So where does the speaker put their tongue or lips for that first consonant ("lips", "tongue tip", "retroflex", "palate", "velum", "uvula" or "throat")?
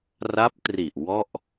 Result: tongue tip